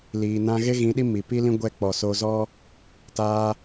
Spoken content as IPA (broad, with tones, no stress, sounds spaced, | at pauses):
l iː˨ n ã˧ ɣ e˦ ɣ ĩ˨˦ ɗ i˦ m i˨ p i˦ l ĩ˦ ɡʷ ɛ˧ k͡p ɔ˨ s o˧ z ɔ˦ | t aː˧